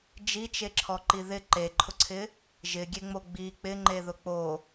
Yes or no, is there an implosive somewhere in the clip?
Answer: no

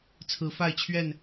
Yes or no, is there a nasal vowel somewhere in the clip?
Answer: no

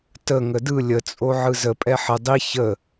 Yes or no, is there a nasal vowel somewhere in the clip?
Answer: no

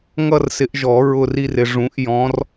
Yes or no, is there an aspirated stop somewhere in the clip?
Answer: no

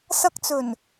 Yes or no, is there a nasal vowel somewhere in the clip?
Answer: no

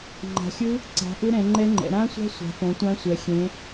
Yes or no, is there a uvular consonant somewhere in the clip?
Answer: no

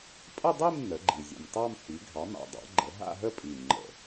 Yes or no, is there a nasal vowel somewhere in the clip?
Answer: no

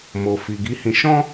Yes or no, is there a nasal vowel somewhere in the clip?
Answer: yes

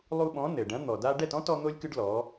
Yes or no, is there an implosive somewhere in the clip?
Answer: yes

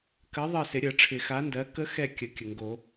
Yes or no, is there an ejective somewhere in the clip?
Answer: no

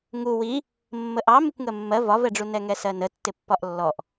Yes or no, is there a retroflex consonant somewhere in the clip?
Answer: yes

